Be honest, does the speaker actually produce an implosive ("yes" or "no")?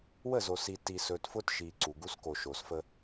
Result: no